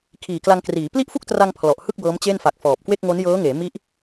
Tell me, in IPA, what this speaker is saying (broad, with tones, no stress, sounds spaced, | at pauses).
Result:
kʰ iː˨˩ k l a˧ ŋ k r iː˩˦ p l i˥˩ ʔ f u˥˩ k̚ t r a˧ ŋ pʰ l ɔ˨˩ ʔ h ɯ˥˩ k̚ b ɤː˦˥ m t͡ɕ e˥˩ n f a˨˩ k̚ f ɔː˨˩ p̚ k w e˥˩ k̚ ŋ o˦˥ n j ɤː˦˥ ŋ eː˩˦ m i˦˥ ʔ